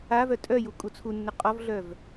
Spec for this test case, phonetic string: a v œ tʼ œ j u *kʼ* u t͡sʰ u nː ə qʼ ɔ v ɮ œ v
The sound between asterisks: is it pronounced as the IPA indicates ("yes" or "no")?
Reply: yes